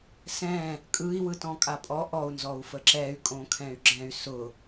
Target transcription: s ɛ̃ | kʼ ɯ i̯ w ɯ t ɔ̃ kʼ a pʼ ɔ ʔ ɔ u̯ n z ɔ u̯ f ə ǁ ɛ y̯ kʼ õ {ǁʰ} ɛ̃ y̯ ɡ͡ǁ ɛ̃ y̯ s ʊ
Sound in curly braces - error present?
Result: yes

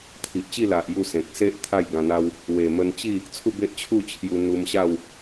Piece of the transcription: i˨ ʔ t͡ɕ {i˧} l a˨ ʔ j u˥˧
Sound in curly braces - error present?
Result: yes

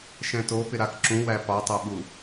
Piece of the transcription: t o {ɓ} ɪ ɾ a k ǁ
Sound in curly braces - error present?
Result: yes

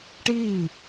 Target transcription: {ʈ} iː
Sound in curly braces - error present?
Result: no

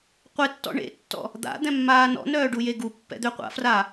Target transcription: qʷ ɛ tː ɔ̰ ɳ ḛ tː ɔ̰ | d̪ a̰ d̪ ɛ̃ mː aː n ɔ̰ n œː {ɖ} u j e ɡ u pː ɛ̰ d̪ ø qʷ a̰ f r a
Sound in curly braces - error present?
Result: no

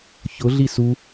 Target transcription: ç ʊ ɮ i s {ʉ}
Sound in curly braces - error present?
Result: yes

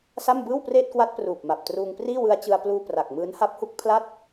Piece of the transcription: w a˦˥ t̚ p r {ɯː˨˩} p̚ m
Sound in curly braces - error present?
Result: yes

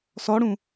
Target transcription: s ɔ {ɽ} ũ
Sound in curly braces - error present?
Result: no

